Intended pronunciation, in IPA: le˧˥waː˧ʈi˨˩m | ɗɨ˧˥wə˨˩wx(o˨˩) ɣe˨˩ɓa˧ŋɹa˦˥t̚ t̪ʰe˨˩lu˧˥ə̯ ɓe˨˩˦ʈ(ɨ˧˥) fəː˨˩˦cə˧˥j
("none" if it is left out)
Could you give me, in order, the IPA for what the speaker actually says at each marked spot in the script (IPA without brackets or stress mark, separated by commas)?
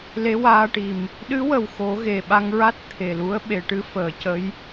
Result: o˨˩˦, ɨ˧˥